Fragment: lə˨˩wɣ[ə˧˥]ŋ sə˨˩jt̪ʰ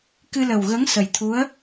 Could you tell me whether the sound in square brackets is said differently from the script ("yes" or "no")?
no